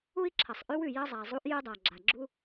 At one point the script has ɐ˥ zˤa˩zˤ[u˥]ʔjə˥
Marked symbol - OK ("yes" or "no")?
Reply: yes